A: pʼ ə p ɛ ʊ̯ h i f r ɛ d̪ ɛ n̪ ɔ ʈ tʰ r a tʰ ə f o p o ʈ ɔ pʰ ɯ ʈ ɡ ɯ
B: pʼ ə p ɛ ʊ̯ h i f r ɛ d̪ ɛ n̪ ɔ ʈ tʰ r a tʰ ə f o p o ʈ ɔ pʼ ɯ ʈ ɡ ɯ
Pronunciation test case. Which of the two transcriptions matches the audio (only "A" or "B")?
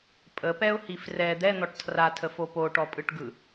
B